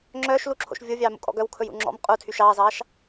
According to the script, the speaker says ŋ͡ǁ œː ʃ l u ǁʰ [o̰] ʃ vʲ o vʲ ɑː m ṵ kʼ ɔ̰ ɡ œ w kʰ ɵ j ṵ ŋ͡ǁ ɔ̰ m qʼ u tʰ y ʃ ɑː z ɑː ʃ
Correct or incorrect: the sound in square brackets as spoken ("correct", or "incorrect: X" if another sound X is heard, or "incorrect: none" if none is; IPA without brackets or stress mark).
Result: correct